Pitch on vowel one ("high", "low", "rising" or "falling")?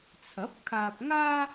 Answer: rising